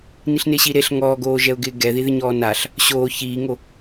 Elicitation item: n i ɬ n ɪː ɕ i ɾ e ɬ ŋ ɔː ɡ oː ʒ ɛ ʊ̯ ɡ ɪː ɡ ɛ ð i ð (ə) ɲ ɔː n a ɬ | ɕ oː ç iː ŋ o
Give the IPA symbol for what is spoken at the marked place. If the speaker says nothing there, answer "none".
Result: ɪ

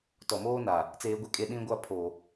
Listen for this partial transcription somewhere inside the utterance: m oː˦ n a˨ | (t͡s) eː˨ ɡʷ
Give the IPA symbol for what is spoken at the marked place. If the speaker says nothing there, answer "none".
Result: t͡s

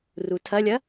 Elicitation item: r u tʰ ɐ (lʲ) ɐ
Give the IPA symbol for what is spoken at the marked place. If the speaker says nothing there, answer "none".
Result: lʲ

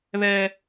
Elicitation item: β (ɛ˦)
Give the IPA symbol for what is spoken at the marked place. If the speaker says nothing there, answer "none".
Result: ɛ˦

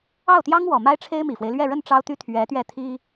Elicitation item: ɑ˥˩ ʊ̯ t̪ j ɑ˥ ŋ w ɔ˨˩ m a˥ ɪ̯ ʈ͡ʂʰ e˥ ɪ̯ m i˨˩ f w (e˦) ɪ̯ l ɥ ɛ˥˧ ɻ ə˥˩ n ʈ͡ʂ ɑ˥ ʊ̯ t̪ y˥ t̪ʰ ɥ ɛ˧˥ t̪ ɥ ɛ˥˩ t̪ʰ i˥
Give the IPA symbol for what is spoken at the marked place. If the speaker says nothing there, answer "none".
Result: e˦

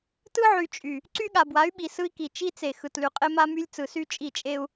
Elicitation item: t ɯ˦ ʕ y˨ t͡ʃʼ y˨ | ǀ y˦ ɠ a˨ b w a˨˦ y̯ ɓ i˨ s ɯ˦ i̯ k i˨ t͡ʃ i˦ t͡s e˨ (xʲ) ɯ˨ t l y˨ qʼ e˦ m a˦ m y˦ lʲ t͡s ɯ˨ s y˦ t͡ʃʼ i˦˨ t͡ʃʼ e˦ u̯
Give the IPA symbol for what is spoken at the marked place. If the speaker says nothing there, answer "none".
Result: x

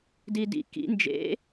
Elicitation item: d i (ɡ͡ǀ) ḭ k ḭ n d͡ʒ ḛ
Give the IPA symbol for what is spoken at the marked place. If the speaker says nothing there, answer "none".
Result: d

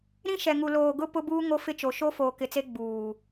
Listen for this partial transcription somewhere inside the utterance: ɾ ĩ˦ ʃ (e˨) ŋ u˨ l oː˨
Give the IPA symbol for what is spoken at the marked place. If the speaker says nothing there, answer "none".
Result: ɛ˨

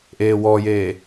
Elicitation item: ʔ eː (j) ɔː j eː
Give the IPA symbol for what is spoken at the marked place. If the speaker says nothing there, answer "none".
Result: w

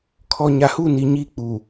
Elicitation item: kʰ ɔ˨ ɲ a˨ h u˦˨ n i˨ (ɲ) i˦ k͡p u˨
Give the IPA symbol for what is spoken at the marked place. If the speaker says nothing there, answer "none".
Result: ɲ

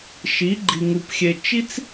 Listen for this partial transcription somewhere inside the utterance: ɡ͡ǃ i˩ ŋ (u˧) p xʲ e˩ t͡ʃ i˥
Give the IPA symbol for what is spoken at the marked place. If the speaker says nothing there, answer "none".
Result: u˩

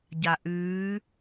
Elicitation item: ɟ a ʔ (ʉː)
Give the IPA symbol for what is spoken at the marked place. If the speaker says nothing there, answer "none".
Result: ʉː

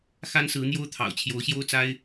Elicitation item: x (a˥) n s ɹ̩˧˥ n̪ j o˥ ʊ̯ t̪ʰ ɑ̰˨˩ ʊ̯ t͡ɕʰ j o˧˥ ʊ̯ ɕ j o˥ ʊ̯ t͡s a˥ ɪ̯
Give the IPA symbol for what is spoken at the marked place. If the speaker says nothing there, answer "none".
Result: a˥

